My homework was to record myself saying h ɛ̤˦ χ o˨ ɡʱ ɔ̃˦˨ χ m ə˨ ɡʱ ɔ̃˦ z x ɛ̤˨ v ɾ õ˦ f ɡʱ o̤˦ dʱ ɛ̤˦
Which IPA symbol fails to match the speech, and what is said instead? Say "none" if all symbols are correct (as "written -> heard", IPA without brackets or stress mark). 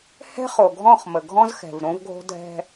f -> v